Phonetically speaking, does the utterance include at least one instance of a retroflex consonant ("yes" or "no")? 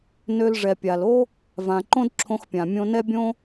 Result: yes